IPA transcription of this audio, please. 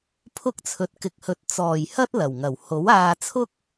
pʰʊ˥k̚t͡sʰɵ˧t̚ kɪ˨k̚hɵ˨t̚ t͡sɔː˨˩j hɐ˥t̚lɐ˨˩wŋɐ˨˩w ho˨˥waː˧t͡sʰʊ˥k̚

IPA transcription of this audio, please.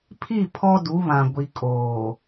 pʰi˦˨ pʰɔ˦du˨˦βã˨ ɡʷi˨kʼoː˨

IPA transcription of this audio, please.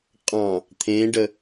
qʼɑ̃ | t̪ʰẽɖə

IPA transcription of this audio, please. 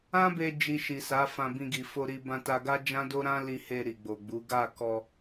ã˦be˧ d͡ʒi˧ʃi˨sa˨˦ fã˧bĩ˧ɡi˨ fo˧ɾi˧ bã˧ta˧ɡa˦ d͡ʒã˦do˦ɾã˦li˧ he˧ ɾi˨ɡ͡bo˨ɡ͡bu˨˦ ɡa˦˨kɔ˧

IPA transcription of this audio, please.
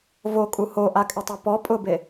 vokʼu hoʔakʼɪtˤɛ pɔ pʼʊbe

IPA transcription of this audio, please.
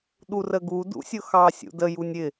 ɗurəɡu dṵsʲʊxɑ sʲṵdə junʲɪ

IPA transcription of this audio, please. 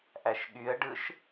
ʔæʃɠyə̯ɖɯʃ

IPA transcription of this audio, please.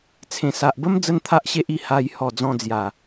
t͡sʰẽ˨˩sa˨ʔbə˦m d͡zə˦nt̪ʰa˦ʔɕe˦ʔi˧ ha˧j hɔ˨˩d͡zɔ̃˧ d͡zja˨˩

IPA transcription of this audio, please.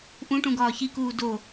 ʔũʈũ ɡɒːçikuː do

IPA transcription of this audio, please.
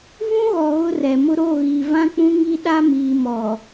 vũ˦ɣɔ˨ ɣʊ˦rɛ˨mʊ˦ ɾo˦˨ɣi˨ vã˦k͡pũ˦ŋi˦ ɗa˦ miː˨mɔ˨

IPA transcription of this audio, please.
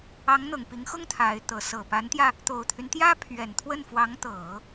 ɑ˧˥ŋn̪ɤ˨˩ŋpi˧˥ŋxʊ˥ŋ t̪ʰa˧˥ɪ̯t̪ɤ˧˥ sɤ˨˩ pa˧˥nt̪jä˧ | t̪o˨˩ʊ̯t̪ʰy˦nt̪jä˥ pʰɥɛ˨˩nt̪ʰwə˥˩nfwɑ˧˥ŋt̪ɤ˨˩˦

